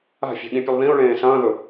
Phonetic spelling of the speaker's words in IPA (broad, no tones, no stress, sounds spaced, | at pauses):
a̤ fʲ a̤ ɠ ĩ pʲ ɨ lˠ ð ĩ ʊ̯ ɭ ẽː s ɐ̃ː ð ɵ